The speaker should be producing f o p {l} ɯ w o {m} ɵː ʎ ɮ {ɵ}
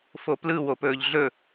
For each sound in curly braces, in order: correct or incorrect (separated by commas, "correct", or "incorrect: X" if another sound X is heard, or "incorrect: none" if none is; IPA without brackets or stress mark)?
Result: correct, incorrect: p, correct